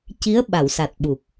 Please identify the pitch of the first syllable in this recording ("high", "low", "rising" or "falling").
rising